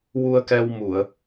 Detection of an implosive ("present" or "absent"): absent